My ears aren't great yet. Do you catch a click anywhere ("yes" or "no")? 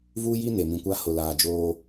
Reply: no